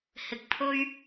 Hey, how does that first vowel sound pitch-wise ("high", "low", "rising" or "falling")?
low